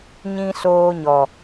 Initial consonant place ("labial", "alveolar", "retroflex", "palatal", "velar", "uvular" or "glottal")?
palatal